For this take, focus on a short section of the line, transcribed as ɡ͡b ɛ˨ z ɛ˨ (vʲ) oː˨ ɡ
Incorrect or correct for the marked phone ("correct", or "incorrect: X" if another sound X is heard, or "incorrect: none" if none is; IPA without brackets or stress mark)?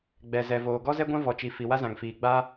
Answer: incorrect: v